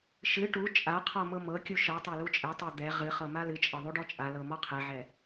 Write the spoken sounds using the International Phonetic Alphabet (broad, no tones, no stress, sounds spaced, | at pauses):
ʃ ɨ ʈ u t͡ʃʼ a qʰ ɔ m ɤ m ɤ kʲ u ʃ ɤ tˤ a l u t͡ʃʼ ɛ tˤ a d̪ ɛ ʁ ɨ χ ɤ m a l ɨ t͡ʃʼ ɤ ðˤ u ɖ ɔ t͡ʃʼ a l ɤ m ɔ qʰ ɛ ʕ ɛ